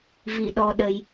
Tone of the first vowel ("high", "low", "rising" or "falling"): low